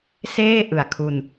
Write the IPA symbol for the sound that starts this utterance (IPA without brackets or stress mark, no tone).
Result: s